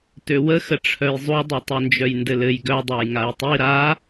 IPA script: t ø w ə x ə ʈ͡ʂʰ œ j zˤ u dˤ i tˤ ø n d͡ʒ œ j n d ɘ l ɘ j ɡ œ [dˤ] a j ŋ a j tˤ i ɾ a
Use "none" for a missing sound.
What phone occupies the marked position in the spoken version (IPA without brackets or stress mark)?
dˤ